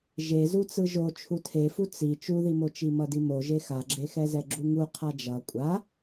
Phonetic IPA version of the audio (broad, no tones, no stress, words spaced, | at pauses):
ʒezut͡sɯ ʒo t͡ʃʰutʰefu t͡si t͡ʃuðimot͡ʃi mʌdimoʒe xaɡ͡ǁexɛzɛ ɡ͡ǁuŋu qʰad͡ʒʌ kʷʼa